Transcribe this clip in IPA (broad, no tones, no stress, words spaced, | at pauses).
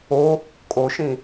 o | kʼoʃĩ